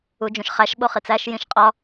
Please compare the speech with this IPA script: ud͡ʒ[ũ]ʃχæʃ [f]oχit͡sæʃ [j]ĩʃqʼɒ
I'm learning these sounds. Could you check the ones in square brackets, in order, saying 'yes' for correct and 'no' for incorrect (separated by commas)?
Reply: yes, no, yes